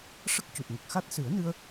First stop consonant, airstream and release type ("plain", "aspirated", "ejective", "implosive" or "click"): plain